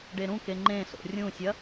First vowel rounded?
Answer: no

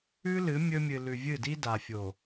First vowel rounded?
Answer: yes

